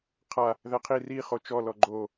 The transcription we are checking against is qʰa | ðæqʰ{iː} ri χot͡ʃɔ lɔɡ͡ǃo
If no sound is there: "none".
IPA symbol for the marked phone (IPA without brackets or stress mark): i